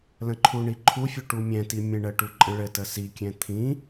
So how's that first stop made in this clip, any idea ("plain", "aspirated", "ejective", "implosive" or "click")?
click